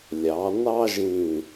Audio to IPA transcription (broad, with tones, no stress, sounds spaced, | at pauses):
lʲ ɑ˩˧ n ɑ˥ ʒ ĩ˧˩